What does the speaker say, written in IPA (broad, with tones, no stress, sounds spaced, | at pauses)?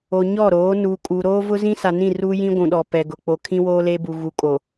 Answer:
o˨ ɲ ɔ˦˨ ɾ oː˨˦ n u˨ kʼ u˨ ɾ oː˦ v ʊ˦ z ĩ˦ s a˨ n ĩ˦˨ r u˦ j ĩ˦ ɡʷ ũ˨ ɗ ɔ˨ p ɛ˨ ɡ ʊ˨ k͡p o˨ kʰ ĩ˦ w oː˦ l e˦ b u˨ ɣ u˨ kʼ o˨